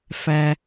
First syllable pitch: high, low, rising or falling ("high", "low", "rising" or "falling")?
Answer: low